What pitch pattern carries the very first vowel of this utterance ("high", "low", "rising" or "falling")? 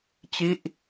falling